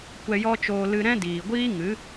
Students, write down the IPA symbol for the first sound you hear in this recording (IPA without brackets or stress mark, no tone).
kʷ